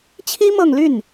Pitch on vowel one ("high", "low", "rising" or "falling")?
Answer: high